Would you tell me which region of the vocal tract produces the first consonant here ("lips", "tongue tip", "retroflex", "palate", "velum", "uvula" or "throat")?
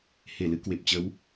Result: throat